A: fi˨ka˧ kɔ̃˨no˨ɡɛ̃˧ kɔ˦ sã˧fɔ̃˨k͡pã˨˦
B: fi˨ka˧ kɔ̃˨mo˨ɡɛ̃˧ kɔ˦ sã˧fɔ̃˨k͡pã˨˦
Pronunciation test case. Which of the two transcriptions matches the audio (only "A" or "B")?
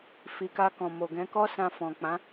B